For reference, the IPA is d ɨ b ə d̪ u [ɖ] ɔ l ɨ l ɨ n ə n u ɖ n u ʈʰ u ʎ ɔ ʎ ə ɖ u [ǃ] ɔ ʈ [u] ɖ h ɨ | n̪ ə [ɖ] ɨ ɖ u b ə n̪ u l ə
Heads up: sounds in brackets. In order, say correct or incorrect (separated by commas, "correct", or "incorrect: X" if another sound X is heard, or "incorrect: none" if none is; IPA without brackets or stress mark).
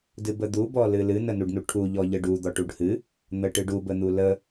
incorrect: b, incorrect: d̪, correct, incorrect: ʈ